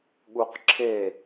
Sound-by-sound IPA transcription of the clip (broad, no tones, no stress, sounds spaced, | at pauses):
ɠ u q ǁʰ e